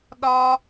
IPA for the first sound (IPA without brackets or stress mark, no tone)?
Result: ɗ